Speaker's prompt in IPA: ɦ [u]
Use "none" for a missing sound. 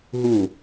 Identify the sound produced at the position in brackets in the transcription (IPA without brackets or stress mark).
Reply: u